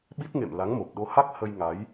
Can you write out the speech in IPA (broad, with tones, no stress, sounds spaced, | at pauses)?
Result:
ɓ i˦˥ t̚ ŋ ḛ˧˨ m l a˨˦ ŋ m o˨˩ p̚ ɗ o˨˦ h a˦˥ k̚ h ə˧ j ŋ a˨˦ j